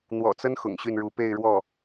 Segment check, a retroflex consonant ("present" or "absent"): present